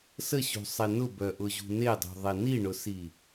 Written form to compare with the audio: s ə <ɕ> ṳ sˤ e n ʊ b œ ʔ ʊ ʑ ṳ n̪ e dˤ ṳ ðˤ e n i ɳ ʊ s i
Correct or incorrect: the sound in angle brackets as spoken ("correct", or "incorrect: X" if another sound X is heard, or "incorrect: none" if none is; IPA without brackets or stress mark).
correct